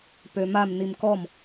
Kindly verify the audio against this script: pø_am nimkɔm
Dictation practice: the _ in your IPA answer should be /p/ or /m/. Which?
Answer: m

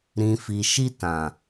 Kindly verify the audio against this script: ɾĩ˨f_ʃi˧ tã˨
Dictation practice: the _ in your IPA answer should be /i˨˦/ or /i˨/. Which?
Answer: i˨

